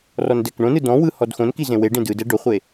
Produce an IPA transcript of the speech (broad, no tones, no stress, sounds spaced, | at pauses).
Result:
r ɔ n d ɛ k ɳ õ n ɯ d ɔ̃ w ɯ h ɔ d x õ n k i z ẽ w e ɖ ẽ d ɯ d ɛ ɖ o χʷ e